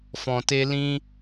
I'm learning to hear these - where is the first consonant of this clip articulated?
lips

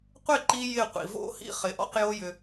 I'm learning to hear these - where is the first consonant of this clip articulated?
uvula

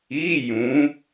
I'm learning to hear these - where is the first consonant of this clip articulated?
palate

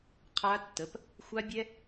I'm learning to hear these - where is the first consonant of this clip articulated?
uvula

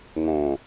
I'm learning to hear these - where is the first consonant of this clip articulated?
velum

